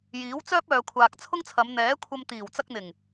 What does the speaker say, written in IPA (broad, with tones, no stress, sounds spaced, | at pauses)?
j iː˨˥ w t͡s œː˥ p̚ œː˨ kʷʰ aː˨ k̚ t͡sʰ ʊ˥ ŋ t͡sʰ ɐ˨˧ m n̪ ɛː˨˥ kʷʰ ɐ˧ m t̪ iː˨˩ w t͡s ɐ˧ k̚ n̪ ɪ˨˩ ŋ